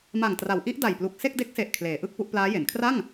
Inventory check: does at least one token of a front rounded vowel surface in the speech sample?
no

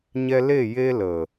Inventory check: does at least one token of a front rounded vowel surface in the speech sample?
no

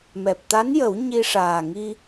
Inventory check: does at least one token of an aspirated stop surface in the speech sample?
no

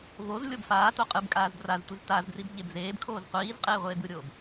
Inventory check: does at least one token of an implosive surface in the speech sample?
no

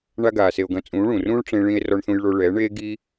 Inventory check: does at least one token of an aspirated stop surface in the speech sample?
no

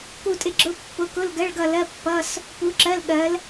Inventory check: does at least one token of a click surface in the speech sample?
yes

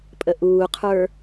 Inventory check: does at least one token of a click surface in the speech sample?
no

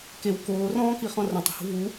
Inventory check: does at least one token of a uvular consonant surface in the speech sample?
yes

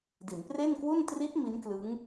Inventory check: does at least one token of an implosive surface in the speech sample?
no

